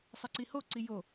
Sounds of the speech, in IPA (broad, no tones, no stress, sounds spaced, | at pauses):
sˤ ɛ ǀ i h o ǀ i j o